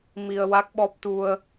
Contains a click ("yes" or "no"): no